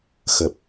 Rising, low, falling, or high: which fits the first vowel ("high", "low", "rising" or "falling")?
low